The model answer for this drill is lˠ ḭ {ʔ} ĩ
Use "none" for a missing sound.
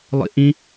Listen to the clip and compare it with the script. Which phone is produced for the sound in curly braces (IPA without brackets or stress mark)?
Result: ʔ